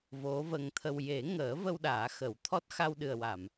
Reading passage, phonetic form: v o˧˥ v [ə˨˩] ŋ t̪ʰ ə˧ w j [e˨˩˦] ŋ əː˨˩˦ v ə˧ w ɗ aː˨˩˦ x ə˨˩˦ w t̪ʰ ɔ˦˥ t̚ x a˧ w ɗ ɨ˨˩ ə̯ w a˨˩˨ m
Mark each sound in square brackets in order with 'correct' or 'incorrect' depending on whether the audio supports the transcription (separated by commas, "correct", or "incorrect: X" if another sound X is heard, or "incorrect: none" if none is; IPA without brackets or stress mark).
incorrect: ə˧, correct